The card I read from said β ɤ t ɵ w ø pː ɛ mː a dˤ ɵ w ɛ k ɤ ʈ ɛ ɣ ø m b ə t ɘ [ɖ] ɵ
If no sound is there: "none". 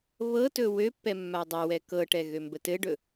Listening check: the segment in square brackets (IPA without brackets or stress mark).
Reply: ɖ